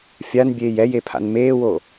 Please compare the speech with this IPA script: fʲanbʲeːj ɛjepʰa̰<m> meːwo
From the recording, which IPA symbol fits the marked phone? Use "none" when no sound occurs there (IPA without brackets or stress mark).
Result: n